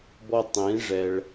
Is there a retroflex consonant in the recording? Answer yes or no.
yes